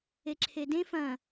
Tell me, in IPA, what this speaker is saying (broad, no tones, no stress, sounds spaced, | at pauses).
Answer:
e ǁʰ e d ẽ f ɐ̃